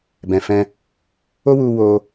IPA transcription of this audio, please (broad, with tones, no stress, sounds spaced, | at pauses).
b ɛ̃˨ f ɛ̃˧ | o˦ w u˧ w o˧